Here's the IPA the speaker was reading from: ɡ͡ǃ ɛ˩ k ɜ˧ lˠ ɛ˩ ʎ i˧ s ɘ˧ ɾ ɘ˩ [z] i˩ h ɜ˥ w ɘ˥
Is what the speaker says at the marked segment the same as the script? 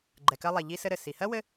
no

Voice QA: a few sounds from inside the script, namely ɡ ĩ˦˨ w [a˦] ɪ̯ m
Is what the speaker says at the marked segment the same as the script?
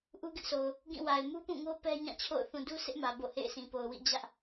no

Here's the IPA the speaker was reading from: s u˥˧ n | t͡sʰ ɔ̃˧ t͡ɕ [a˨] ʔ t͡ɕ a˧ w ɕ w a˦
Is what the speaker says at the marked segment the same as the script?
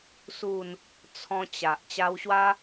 yes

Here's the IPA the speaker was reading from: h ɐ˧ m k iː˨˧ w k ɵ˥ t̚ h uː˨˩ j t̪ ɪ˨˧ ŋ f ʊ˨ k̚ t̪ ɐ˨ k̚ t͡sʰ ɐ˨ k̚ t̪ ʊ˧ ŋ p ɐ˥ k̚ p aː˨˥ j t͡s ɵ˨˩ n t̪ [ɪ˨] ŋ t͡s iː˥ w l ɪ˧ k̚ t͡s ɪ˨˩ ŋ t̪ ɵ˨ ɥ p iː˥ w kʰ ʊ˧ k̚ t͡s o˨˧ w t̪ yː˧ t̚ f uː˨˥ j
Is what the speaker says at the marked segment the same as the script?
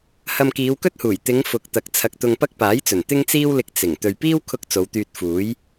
no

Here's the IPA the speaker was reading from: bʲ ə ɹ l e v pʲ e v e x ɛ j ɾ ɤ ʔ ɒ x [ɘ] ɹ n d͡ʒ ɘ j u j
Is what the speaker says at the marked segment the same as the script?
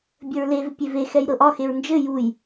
no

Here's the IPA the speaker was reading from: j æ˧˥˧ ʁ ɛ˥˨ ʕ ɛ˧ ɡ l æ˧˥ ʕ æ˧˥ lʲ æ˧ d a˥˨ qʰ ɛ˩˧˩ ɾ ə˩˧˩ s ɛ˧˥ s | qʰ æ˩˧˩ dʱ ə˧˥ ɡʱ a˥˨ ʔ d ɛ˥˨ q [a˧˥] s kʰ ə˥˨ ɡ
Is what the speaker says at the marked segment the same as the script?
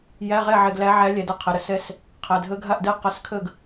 yes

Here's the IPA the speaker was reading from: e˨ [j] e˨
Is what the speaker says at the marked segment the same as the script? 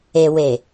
no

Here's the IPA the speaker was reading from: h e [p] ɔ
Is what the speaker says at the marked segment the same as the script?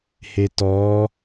no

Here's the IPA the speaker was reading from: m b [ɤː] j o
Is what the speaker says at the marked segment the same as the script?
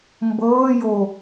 yes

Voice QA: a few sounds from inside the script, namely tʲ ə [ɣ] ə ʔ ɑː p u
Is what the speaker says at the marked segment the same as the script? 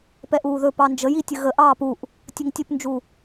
yes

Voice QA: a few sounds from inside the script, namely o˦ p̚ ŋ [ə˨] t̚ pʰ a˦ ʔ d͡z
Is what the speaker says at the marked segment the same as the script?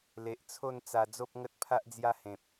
no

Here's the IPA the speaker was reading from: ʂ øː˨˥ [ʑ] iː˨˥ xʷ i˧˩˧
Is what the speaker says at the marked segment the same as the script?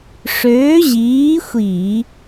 yes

